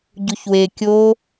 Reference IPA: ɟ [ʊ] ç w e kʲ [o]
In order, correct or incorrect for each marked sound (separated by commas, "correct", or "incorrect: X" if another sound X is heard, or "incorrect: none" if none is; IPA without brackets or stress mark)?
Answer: incorrect: u, correct